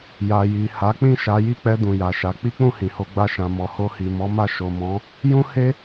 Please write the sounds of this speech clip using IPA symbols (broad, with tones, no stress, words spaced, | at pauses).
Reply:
ja˨ji˨ ha˨˦ k͡pĩ˦˨ʃa˨˦ji˦˨ k͡pɛ˧ dũ˨ja˨ʃa˨˦ k͡pi˦k͡pũ˦˨hĩ˨ho˧ ɡ͡ba˧ʃã˨ mɔ˨ho˧hi˨mɔ˨˦ ma˦˨ ʃo˨mɔ̃˨˦ | jũ˦he˦